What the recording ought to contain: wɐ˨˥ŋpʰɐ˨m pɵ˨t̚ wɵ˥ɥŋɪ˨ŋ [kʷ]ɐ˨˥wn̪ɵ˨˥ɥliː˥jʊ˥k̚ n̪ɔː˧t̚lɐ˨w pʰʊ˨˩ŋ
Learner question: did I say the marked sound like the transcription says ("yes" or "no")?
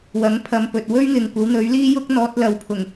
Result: yes